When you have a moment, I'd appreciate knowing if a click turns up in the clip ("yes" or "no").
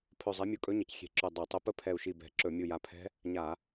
yes